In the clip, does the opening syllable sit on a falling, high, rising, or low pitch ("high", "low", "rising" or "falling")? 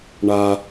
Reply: high